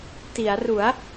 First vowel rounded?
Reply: no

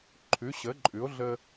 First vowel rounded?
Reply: yes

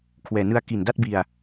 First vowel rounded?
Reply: no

